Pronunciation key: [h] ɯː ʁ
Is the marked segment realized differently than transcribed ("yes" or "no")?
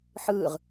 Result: yes